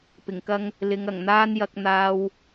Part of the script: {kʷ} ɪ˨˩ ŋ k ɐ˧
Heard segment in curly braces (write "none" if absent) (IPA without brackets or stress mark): p